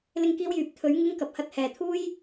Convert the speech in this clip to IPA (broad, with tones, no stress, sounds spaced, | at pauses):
l ɪ˧ ŋ k iː˧ w j yː˨˥ p̚ t̪ʰ ɵ˨˧ ɥ ŋ ɪ˧ ŋ k ɐ˨ p̚ h ɐ˧ t̚ h ɛː˨ t̪ʰ uː˥ j